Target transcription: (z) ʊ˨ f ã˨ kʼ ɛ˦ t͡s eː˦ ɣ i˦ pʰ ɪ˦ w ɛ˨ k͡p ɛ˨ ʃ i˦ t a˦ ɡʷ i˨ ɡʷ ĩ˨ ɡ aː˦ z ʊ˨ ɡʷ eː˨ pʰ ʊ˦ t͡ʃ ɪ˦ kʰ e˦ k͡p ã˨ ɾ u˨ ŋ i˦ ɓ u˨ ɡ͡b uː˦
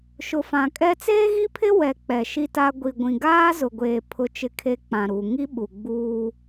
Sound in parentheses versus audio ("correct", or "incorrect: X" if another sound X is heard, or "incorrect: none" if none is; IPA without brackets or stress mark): incorrect: ʃ